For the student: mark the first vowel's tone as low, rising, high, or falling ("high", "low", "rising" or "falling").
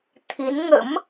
rising